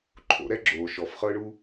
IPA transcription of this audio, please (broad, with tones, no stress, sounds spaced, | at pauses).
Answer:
ǃʰ o̰˩˧ ɾ ɛ˧ ɡ͡ǁ oː˩ ʃ ɔ˩ f χ ɤ˧ ɳ u˧